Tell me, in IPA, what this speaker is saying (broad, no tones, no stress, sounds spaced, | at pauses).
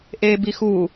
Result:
ʔ eː b i x u